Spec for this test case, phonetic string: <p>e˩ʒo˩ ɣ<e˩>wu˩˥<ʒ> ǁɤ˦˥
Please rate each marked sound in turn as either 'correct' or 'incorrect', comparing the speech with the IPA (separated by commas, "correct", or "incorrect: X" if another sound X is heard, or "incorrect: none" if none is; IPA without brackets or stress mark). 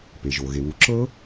correct, correct, incorrect: none